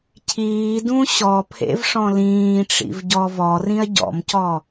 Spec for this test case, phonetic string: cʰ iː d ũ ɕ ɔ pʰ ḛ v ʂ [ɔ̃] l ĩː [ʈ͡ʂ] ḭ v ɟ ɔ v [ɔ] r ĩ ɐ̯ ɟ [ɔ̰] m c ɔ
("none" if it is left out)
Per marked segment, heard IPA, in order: ɔ̃, ʈ͡ʂ, ɔ, ɔ̰

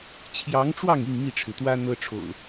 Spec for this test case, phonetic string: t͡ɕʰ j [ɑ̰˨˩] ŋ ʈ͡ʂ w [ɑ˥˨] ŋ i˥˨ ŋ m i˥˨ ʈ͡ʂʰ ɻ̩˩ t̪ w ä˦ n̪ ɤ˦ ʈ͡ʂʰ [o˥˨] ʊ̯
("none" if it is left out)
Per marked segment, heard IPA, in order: ɑ˨˦, ɑ˥˨, o̰˨˩

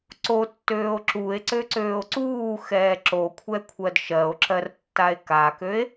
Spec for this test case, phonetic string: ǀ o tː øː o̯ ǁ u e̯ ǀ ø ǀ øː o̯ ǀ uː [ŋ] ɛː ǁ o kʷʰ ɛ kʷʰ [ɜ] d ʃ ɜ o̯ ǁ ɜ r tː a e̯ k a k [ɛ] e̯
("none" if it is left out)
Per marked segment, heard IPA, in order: x, ɜ, ø

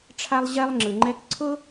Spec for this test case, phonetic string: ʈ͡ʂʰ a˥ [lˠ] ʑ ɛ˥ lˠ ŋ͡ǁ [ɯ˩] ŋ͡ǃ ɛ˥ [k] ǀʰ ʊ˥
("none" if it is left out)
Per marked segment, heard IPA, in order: lˠ, ɯ˩, k

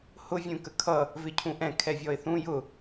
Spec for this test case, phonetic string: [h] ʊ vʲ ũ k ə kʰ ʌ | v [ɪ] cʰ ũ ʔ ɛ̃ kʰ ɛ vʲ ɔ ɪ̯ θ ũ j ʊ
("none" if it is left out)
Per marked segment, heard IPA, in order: h, ɪ

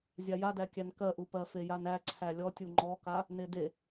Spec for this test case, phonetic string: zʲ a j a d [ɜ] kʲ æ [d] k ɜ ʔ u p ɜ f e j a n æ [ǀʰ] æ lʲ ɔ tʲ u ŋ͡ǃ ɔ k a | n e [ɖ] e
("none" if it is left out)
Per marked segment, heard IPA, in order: æ, n, ǀʰ, d

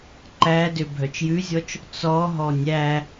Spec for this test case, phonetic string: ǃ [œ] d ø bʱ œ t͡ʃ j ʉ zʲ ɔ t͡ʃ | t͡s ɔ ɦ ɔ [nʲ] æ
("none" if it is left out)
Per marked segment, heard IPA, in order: æ, nʲ

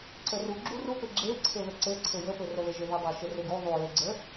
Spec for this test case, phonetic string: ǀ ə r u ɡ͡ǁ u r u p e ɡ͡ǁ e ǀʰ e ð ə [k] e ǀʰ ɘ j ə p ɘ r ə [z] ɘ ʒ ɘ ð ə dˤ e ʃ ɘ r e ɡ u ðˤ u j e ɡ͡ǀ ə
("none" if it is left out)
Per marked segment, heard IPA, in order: ǀ, ð

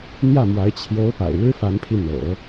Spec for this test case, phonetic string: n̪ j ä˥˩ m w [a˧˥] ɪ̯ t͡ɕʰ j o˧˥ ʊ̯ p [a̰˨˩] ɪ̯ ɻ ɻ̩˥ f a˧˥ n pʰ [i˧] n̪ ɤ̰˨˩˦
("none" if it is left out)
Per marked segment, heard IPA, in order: a˧˥, a̰˨˩, i˧

